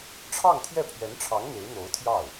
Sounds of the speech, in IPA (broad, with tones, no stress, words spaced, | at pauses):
ʈ͡ʂʰɑ˥˧ŋt̪ʰjɛ˥˩pʰɥɛ˧˥nʈ͡ʂʰɑ˧˥ŋ n̪e˧˥ɪ̯n̪o˧˥ʊ̯t̪ʰjɑ˥˩ʊ̯